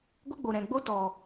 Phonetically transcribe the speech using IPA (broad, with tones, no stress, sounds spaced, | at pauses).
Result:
ɡʷ ə˦ ɡ͡b o˨ ɾ ɛ̃˨ ɡ͡b o˦ t ɔ˨